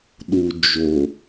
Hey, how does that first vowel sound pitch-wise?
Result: low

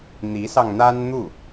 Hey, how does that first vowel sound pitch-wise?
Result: rising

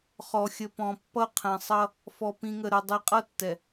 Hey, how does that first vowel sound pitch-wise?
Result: low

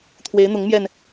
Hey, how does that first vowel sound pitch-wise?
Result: rising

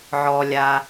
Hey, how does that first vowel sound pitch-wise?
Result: low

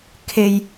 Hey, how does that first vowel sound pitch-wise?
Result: low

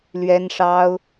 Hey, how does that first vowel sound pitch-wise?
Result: high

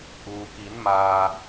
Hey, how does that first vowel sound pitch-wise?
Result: low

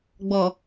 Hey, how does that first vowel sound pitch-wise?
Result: low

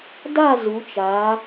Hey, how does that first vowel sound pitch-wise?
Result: falling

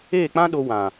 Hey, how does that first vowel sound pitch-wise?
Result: falling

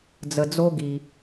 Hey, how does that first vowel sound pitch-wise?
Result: low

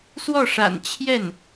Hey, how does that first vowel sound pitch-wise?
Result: falling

